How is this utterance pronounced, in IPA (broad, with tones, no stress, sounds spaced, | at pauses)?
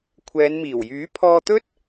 kʷʰ ɛː˨˧ n m iː˨˩ w j yː˨˥ pʰ ɔː˧ t̪ ɵ˥ t̚